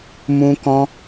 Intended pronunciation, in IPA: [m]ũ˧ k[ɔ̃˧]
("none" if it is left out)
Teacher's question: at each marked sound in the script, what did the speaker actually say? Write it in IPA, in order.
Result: m, ɔ̃˧

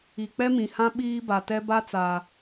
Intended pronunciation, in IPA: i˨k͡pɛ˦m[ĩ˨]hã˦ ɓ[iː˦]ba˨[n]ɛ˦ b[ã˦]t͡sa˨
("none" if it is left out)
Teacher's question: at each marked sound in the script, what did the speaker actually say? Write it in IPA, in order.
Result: ĩ˨, iː˦, t, a˦

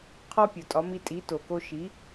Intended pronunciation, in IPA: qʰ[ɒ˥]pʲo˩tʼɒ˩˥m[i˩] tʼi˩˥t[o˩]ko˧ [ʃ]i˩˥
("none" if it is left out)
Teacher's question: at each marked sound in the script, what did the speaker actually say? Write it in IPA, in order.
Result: ɒ˥, i˧, o˩, ʃ

